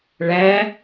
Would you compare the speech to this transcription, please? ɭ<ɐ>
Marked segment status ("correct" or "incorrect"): incorrect